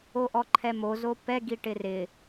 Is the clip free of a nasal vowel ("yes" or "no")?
yes